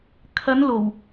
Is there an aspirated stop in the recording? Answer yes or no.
yes